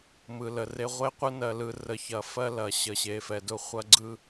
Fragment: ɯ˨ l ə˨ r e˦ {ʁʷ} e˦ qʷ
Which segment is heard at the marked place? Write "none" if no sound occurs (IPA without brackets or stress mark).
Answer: ʁʷ